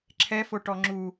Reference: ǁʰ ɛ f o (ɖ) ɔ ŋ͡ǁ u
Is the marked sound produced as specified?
no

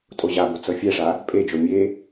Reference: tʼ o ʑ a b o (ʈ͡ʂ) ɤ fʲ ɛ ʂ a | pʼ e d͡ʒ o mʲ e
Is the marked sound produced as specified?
no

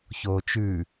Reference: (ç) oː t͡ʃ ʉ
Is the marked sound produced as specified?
yes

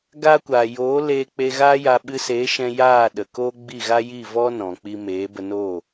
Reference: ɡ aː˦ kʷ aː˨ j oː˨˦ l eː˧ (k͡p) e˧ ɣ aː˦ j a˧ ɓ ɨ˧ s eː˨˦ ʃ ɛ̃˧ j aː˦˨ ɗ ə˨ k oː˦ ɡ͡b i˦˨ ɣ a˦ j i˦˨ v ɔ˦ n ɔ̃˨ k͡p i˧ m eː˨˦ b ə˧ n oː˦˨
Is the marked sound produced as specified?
yes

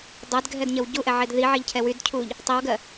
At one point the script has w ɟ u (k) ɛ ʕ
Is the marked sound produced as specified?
no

